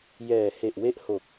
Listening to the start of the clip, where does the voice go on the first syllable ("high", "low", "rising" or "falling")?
low